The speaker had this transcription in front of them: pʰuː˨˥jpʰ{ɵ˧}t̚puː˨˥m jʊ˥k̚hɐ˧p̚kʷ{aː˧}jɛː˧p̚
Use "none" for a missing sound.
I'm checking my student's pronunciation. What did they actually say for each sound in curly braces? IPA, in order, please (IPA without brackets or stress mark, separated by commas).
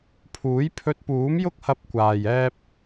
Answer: ɵ˧, aː˨